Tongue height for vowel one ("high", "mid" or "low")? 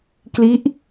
high